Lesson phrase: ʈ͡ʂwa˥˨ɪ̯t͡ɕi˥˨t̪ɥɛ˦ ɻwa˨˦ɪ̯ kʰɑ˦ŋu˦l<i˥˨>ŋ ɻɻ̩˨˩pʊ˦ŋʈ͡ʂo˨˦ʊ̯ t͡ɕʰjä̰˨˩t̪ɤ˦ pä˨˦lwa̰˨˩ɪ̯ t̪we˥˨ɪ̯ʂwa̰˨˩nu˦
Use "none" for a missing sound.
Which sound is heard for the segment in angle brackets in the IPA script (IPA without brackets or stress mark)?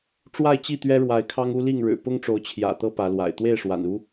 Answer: i˥˨